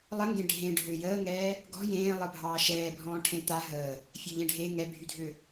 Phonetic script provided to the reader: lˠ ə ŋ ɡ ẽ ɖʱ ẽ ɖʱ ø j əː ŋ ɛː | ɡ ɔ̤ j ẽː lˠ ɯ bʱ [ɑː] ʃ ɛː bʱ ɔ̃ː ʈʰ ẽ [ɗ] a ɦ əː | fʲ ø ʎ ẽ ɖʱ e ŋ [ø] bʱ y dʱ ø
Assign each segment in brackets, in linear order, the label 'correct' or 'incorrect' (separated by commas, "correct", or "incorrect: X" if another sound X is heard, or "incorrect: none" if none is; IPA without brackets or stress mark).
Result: correct, incorrect: t̪, incorrect: ɛ